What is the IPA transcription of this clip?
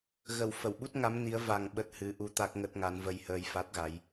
ɣə˧˩w fə˧˩wɓu˦˥t̚ŋa˨˦m ni˨˦ə̯ va˨˩ŋ ɓə˦˥t̚hɨ˨˦ʔu˧ t̪a˦˥k̚ŋə˦˥t̚ŋa˨˦n və˧jhəː˧jfa˦˥t̚ɣa˨˦j

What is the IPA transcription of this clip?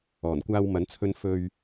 ɔː˨˩nkʷaː˧wmɐ˨˥nt͡sʰɵ˧n fɵ˧ɥ

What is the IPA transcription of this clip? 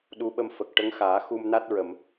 ɗu˧˥ɓə˧mfə˨˩k̚ ʈə˧˥ŋxaː˨˩˦ xu˧mna˦˥t̚ɹə˨˩˨m

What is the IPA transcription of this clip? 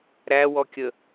ɾæwɔkʲə

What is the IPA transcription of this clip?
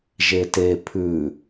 ʒete pʰʉ

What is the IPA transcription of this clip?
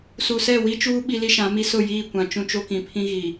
su˨sɛ˦˨wi˦t͡ʃuː˦ ɓi˦li˦ʃã˨˦mi˦ sʊ˦˨jiː˦˨ kʷã˨t͡ʃũ˦t͡ʃo˦kĩ˨ pʰĩ˦ɣi˨

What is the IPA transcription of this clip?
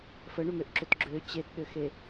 fəɳʏmøʔǁʏt ɡ͡ǁø t͡ɕetɗøxe

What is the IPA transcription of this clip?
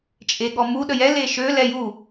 t͡ʃʼeɠɔmu ɗəjɛ leʃø lɛju

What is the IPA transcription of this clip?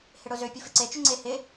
hɪɽʊzø pʲufɪǀe t͡ʃʏŋ͡ǀe hɪ

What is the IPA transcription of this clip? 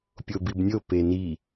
pʲobibnʲo peni

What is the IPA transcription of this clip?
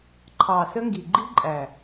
ǃʰɑ˨sə˦ŋɡi˨ ɡ͡ǃi˦ ǃʼæ˨

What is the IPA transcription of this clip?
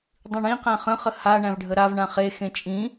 dˤĩɳĩqæ̃ χə̃χə ha ɳæ̃vɖʱəɾavɳã χexẽ t͡ʃʼĩ

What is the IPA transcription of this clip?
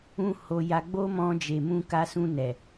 ũ˧ ho˧ja˧ ɡ͡bo˦mɔ̃˧d͡ʒe˨ mũ˧ka˧sũ˧nɛ˨

